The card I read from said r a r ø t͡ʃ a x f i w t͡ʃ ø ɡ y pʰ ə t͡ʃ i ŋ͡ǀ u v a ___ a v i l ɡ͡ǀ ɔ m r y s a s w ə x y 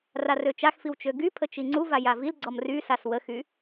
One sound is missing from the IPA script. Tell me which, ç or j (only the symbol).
j